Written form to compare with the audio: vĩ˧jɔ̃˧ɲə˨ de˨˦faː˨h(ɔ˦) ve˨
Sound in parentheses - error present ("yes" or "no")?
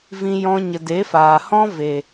yes